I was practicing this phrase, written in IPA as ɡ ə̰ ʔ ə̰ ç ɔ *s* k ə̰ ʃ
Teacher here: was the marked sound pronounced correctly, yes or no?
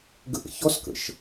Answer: yes